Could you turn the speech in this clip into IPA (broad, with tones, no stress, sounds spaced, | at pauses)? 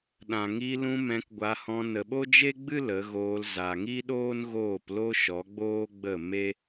ɗ ã˨ ŋ i˧ l ũ˧ m ɛ̃˧ k ɡʷ a˧ h ɔ̃˧ n ə˨ ɓ o˦ d͡ʒ e˦ ɡ͡b ɨ˦ l ə˨˦ ɣ oː˧ l z a˨ ŋ i˦ ɗ oː˦ n ɣ oː˦˨ p l o˦ ʃ ɔ˨˦ ɡ͡b oː˦ ɡ͡b ə˦˨ m e˦